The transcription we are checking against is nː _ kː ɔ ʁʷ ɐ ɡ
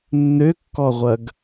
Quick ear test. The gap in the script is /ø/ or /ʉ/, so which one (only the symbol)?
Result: ø